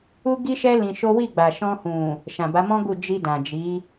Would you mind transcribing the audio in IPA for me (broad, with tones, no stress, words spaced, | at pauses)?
u˦ɡi˦ʃɛ˦ lĩ˧ʃo˦ wi˦˨ɡ͡ba˨ʃɔ̃˧hũ˨ | ʃã˨ba˨˦mɔ̃˦ ɡu˦˨ d͡ʒi˧ dã˨d͡ʒi˨˦